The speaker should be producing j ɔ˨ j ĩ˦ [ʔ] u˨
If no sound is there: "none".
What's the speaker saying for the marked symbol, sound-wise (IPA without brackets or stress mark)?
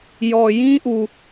ʔ